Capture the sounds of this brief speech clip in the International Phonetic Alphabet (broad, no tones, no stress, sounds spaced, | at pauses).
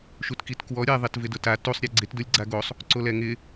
ʃ u t k i t k w ɔ ɾʲ ɛ ðˤ e t v ɪ d ʊ t a t u sˤ ɾʲ ɛ ɡ͡ǀ ɪ t d ʊ lʲ ɡ͡ǀ a ɡ o sˤ | ǀ o l ɛ ŋ ɪ